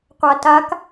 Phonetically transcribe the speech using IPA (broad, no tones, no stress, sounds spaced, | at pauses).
qʷ a t a k